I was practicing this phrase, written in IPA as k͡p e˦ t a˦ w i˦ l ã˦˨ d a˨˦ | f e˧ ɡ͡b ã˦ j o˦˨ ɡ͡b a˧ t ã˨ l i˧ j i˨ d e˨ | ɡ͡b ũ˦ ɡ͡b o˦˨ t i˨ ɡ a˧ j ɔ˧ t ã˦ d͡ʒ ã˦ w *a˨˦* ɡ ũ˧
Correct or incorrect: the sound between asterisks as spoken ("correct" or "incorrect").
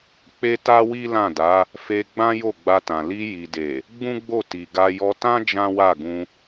incorrect